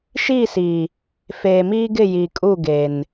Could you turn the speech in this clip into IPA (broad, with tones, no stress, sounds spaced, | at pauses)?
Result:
ʃ iː˦˨ s iː˨ | f eː˨ m iː˦ ɡ ɪ˦˨ j i˨ kʼ u˦˨ ɡ e˨ n